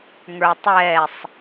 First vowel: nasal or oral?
oral